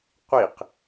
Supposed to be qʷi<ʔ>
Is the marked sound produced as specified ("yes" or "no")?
no